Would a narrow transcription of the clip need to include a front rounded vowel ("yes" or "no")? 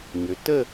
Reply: yes